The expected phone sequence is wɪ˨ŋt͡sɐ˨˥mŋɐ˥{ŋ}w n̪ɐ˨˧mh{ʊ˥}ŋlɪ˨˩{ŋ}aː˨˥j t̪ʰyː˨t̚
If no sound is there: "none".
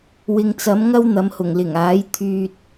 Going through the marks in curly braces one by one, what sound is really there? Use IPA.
none, ʊ˨˩, ŋ

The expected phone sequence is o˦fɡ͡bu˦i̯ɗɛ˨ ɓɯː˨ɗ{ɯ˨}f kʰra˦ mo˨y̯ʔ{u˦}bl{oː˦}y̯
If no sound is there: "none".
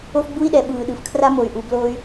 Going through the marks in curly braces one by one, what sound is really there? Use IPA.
ɯ˨, u˨, oː˦

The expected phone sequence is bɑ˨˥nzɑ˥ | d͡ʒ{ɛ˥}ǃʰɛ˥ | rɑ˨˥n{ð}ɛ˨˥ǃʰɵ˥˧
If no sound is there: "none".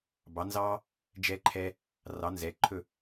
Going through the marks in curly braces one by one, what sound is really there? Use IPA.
ɛ˥, z

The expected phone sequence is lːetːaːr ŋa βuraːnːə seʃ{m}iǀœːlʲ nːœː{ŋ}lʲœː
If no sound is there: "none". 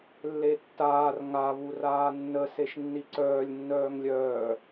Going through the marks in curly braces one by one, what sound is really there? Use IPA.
nː, ŋ

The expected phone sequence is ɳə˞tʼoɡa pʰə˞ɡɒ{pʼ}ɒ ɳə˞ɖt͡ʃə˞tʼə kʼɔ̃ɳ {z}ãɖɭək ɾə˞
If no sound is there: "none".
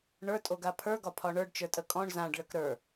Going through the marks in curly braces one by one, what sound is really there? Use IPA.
pʰ, z

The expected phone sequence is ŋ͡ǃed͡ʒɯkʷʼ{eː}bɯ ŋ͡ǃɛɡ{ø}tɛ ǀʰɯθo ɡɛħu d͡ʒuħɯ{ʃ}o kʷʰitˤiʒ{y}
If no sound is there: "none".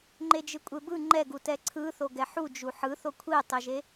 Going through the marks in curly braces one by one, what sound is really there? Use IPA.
e, u, θ, e

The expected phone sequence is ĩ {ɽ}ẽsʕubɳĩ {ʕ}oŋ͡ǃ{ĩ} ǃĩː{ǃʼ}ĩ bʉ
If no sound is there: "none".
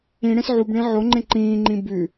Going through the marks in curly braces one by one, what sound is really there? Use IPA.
ɽ, ʕ, ẽ, ŋ͡ǃ

